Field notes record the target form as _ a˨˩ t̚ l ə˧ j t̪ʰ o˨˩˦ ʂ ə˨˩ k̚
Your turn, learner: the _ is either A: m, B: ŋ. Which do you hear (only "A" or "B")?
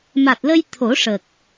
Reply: A